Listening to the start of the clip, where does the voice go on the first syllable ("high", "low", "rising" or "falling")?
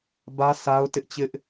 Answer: high